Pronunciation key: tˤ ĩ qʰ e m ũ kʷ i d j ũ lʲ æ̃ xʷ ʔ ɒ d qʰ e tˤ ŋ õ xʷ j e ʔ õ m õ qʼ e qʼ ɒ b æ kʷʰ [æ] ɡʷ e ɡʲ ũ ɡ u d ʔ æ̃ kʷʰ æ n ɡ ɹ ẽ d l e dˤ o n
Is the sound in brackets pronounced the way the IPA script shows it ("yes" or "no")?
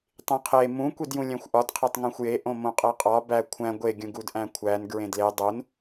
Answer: no